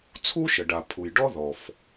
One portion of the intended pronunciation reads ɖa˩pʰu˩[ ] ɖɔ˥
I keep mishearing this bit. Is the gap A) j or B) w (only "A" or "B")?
A